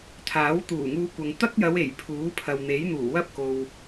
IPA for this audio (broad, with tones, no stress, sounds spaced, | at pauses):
t̪ʰ aː˨˥ w t̪ uː˨˩ ŋ uː˧ kʷ ɐ˨ ŋ t̪ ɐ˥ k̚ j ɐ˨˧ w e˨˩ j pʰ uː˨˥ pʰ ɐ˨ w n̪ e˨˥ j n̪ uː˨˩ w ɐ˥ p̚ k o˨ w